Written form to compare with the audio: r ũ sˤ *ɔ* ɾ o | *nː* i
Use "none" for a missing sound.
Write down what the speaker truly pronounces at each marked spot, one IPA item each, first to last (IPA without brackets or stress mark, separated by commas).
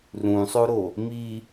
o, m